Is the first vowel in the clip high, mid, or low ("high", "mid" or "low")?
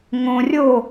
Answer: mid